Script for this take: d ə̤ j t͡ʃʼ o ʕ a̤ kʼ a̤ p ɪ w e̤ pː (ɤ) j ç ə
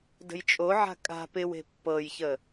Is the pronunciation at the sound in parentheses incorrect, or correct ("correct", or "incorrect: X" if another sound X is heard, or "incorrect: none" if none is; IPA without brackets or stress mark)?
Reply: correct